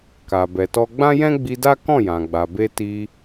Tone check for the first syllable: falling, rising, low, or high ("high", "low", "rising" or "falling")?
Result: low